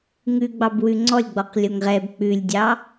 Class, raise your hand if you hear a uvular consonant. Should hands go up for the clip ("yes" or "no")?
yes